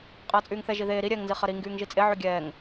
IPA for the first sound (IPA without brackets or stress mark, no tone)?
qʼ